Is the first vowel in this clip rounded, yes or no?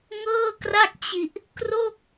no